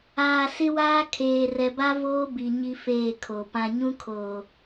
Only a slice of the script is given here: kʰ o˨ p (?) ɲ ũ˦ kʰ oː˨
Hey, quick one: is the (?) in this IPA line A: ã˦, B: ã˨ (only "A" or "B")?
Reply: A